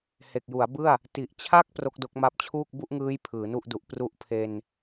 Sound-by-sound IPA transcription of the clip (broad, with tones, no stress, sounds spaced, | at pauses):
h e˨˩ k̚ j u˩˦ a̯ b ɯ˥˩ a̯ | t i˨˩ ʔ t͡ɕʰ a˦˥ k̚ p r o˦˥ k̚ d o˦˥ k̚ m a˦˥ p̚ t͡ɕʰ uː˥˩ k̚ b u˥˩ ʔ ŋ ɯː˦˥ j pʰ ɯː˩˦ n u˥˩ ʔ d u˨˩ ʔ p r u˥˩ ʔ pʰ e˧ n